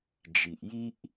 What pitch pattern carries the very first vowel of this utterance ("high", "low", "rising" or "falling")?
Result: low